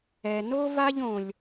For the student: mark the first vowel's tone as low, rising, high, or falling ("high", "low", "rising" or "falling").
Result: low